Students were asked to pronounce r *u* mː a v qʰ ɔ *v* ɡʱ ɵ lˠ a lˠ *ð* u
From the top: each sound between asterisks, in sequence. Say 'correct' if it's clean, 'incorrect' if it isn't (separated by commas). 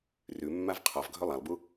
incorrect, correct, incorrect